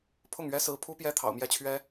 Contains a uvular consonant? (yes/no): no